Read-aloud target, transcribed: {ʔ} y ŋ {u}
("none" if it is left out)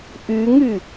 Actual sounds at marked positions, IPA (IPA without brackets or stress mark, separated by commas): ʔ, y